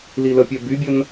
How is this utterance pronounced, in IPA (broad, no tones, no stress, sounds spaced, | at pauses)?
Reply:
l i l ə pʲ ɛ b y bʲ ə n